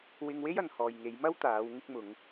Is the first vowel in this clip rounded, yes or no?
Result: no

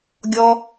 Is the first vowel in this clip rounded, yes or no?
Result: yes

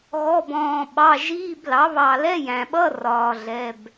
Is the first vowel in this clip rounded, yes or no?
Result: yes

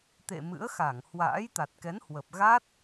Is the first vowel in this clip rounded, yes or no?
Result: no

